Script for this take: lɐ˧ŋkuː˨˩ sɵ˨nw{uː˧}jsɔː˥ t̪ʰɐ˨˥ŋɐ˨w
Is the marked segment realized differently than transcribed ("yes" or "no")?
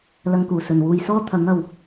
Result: no